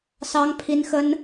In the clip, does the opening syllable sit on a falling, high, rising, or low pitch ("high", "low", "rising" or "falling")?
high